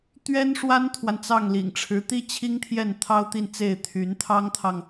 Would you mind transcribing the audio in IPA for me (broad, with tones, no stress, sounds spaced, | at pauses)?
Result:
t̪ ɥ ɛ˥ n ʂ w a˥ n t̪ʰ w a˨ n t͡s ɑ˥˩ ŋ l ḭ˨˩ ŋ ʈ͡ʂʰ ɻ̩˧˥ t̪ i˥ t͡ɕʰ i˥ ŋ t̪ʰ j ɛ˥˩ n t̪ʰ ɑ˥ ʊ̯ t̪ i˥˧ n t͡s e˥˩ ɪ̯ t̪ʰ y˧˥ n t̪ʰ ɑ˥ ŋ t̪ʰ ɑ˨ ŋ